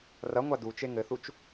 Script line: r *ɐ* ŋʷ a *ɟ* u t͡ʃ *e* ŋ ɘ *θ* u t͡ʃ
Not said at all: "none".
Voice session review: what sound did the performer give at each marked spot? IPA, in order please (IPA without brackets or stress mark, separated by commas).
ɐ, d, e, θ